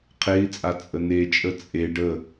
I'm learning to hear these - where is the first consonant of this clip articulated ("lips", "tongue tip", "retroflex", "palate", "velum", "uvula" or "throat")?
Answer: uvula